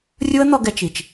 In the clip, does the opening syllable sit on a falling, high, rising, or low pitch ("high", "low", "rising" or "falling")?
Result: high